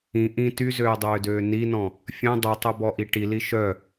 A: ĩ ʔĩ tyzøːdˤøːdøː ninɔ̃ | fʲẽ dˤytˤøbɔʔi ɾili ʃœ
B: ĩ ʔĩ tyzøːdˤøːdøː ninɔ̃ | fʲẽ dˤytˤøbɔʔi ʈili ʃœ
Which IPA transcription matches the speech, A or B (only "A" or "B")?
B